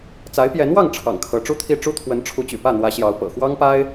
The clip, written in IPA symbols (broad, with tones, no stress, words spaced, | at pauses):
t͡sa˧˥ɪ̯pjɛ˧˥nwɑ˥˩ŋ ʈ͡ʂʰɑ̰˨˩ŋ kʰɤ˧˥ʈ͡ʂu˥t̪ʰi˥˩ ʈ͡ʂu˥t̪ʰwə˧˥nʈ͡ʂʰu˧˥t͡ɕy̰˨˩ pä˥˩n̪wä˧˥ɕjɑ˧˥ʊ̯ pɤ̰˨˩xwɑ˥ŋpa˥ɪ̯